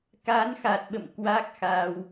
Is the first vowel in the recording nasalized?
no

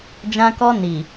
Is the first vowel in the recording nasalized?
yes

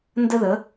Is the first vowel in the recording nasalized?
no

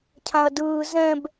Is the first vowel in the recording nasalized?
yes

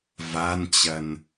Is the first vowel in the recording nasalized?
no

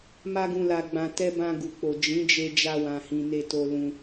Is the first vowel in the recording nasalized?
no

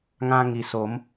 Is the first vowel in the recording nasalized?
yes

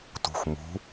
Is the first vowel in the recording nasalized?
no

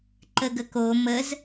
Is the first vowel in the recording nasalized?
no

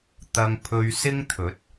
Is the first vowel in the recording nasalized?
no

